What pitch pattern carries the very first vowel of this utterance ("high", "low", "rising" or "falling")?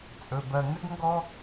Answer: low